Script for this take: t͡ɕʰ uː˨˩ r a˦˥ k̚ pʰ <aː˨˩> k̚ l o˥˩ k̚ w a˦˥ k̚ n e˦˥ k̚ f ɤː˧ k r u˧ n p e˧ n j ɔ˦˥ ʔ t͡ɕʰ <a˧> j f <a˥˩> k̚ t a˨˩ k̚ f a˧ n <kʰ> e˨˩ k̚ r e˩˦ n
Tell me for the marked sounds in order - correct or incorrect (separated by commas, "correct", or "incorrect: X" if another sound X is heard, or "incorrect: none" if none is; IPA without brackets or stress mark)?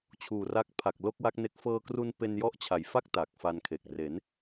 incorrect: a˨˩, incorrect: a˩˦, correct, correct